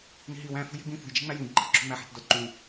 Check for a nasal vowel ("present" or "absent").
present